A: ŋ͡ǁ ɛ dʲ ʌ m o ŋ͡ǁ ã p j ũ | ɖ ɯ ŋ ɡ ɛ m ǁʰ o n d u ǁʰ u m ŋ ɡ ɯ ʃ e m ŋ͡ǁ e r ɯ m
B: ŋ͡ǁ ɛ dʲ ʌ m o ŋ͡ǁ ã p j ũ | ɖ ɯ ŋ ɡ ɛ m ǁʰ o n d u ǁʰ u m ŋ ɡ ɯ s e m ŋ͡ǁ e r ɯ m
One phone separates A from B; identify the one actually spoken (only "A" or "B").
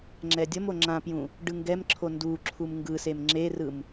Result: B